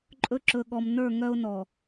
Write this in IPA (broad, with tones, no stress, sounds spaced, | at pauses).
ǃʼ ɵ˦ ǁ ɵ˨ ɠ ɔ˨ m n ə˞˦˨ ŋ œ˦ ʊ̯ n ɔ˨